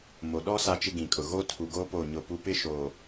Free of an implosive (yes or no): no